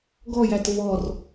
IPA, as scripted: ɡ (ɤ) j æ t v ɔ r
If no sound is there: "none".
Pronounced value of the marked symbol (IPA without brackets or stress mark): ɔ